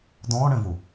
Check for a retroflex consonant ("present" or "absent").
present